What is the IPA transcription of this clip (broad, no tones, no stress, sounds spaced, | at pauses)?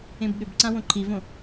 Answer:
ẽ b ɠ ʏ b ǀ ã w õ ǃʰ i v õ